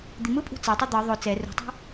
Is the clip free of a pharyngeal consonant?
yes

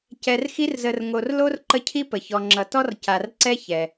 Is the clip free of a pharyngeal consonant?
yes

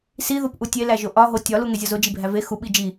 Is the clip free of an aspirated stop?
yes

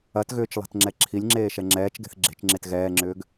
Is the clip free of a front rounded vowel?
no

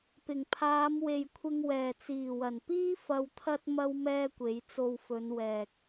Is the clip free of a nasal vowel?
yes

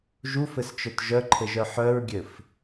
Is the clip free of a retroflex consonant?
yes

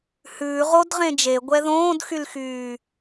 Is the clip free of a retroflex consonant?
yes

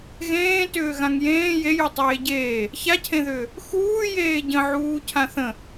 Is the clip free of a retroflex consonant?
yes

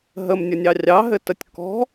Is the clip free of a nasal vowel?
yes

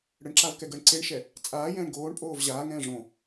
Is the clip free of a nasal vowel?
no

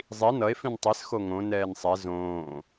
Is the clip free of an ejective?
yes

